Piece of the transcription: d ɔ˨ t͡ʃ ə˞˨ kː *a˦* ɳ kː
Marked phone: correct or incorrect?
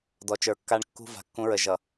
correct